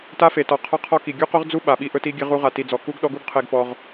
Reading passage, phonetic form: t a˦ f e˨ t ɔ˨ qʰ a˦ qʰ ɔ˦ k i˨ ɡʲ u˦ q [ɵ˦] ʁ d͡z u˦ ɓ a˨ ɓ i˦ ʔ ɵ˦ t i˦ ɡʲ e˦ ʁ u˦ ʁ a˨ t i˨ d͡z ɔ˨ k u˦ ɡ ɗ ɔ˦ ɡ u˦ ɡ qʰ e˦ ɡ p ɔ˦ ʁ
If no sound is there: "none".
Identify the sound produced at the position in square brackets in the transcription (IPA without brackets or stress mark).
ɵ˦